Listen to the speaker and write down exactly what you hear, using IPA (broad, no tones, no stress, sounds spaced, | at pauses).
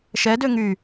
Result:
ʃ ɛ d ø ŋ y